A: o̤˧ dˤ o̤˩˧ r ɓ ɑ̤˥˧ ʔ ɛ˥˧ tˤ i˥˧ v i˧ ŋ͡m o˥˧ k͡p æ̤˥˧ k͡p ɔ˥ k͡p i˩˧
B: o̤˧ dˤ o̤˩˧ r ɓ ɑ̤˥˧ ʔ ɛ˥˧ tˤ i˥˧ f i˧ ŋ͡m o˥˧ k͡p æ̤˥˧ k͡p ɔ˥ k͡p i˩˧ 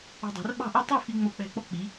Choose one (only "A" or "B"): B